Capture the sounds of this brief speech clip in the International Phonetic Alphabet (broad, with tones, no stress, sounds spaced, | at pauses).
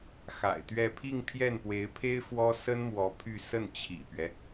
x a̰˨˩ ɪ̯ t̪ ɥ ɛ˥˧ pʰ i˥˧ ŋ pʰ j ɛ˥˩ n p w e˧˥ ɪ̯ pʰ e˥ ɪ̯ f w ɔ˥ s ə˥ n m w ɔ˧˥ pʰ y˥˧ s ə˥˩ n t͡ɕʰ ḭ˨˩ p ɥ ɛ˦